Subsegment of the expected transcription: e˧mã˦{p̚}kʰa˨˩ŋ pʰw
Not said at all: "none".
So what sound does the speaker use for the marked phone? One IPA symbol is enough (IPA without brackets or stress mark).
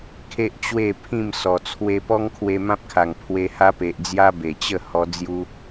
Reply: p̚